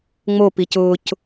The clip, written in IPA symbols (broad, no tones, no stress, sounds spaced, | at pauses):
ŋ͡m o p i c ʊ c